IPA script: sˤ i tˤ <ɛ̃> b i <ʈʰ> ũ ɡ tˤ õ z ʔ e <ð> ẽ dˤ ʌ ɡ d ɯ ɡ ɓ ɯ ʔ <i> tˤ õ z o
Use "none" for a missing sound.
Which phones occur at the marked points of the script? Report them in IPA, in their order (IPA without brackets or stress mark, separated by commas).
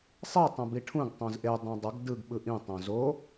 ɛ̃, ʈʰ, dˤ, ĩ